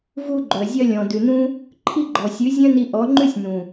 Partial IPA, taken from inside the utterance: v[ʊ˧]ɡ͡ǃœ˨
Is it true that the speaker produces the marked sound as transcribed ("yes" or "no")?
no